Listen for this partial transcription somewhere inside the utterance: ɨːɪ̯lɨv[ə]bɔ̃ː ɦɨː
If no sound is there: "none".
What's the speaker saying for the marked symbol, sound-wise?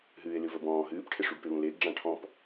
ə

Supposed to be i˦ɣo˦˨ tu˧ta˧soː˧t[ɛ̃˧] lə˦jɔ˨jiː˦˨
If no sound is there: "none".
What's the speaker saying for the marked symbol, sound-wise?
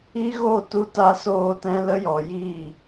ɛ̃˧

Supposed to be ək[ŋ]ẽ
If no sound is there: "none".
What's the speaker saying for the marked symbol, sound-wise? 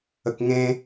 ŋ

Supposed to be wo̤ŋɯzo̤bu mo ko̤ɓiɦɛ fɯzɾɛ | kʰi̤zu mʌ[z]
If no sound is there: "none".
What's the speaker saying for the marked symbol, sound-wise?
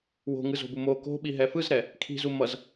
z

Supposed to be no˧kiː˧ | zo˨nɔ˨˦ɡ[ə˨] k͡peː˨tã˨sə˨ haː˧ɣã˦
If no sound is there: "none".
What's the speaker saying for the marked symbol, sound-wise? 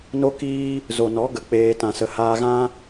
ə˨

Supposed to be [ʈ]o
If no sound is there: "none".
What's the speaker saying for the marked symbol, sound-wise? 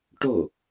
ʈ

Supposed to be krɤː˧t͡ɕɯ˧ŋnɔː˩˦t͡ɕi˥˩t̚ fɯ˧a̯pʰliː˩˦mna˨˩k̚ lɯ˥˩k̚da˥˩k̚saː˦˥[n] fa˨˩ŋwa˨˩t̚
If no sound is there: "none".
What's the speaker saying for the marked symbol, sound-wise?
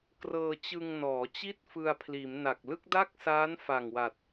n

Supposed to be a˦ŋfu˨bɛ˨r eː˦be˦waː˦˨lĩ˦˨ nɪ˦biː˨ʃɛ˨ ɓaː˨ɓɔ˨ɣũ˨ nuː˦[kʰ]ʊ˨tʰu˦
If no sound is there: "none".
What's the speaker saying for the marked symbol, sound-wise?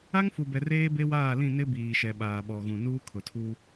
kʰ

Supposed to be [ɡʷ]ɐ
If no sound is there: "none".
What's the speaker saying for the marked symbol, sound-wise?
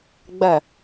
ɡ͡b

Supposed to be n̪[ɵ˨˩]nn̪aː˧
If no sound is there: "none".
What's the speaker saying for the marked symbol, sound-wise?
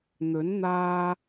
ɵ˨˥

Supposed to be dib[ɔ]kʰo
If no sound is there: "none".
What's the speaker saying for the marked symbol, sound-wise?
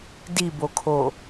o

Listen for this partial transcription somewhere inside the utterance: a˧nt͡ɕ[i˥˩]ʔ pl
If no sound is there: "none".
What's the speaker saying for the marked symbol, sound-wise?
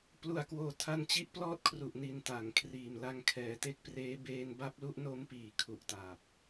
i˥˩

